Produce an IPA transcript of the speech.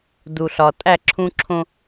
d u˨ ɬ ɒ˨ tʼ æ˦˨ ǁʰ ũ˦ ǁʰ õ˦

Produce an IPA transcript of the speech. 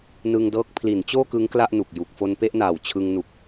n ɯ˧ ŋ d ɤː˦˥ k̚ pʰ l i˩˦ n t͡ɕ oː˥˩ k ɯ˦˥ ŋ k l a˥˩ ʔ n u˨˩ k̚ j u˨˩ k̚ f o˧ n p e˥˩ ʔ n aː˨˩ w t͡ɕʰ ɯ˧ ŋ n u˨˩ k̚

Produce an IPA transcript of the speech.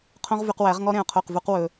qʰ õ˦ ʁ v y˧ q w æ˨˦ ʁ ŋ ɔ˦ ɾ ẽ˨ ʊ̯ qʰ o˦˨ q v u˦ q w ɵ˧

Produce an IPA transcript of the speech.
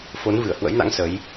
f o˨˦ n v ɨ˧˩ ə̯ h w ə̰˧˥ j n a̰˧˥ ŋ s ə˨˦ j

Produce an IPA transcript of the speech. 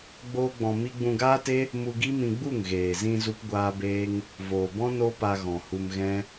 ɡ͡b oː˦ ɡ͡b ɔ̃˧ m i˦ ɡ͡b ũ˧ ɡ aː˦ t e˦ | m u˧ ɡ i˦ m ĩ˧ ɡ͡b u˦˨ ŋ ɣ eː˨ z ĩ˧ z u˦ p ɡʷ aː˦ b eː˦ ŋ | v oː˨ b ɔ̃˦ n o˦ p a˧ ɣ ɔ̃˨ h u˧ m ɣ ɛ̃˦

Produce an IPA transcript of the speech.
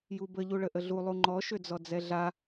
j u b ə ʎ u ɭ ə ʔ ə ɮ u lˠ u ŋ͡ǃ ɔ ʃ ø d͡z ɔ d͡z ɛ ɮ a

